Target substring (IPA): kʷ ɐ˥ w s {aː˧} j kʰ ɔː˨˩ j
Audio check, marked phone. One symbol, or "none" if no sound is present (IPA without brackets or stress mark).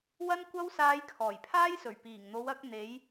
aː˧